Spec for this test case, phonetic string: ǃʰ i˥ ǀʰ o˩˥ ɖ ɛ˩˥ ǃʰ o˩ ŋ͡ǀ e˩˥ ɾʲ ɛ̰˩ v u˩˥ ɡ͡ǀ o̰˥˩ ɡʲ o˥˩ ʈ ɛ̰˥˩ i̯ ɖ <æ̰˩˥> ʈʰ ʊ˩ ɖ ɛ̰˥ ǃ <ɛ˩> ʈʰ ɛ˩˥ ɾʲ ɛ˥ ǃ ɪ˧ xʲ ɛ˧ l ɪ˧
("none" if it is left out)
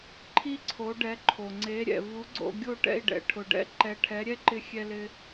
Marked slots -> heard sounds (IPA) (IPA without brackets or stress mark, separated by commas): ɛ̰˩˥, ɛ˩˥